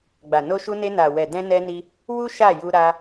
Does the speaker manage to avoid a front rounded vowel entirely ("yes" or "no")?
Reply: yes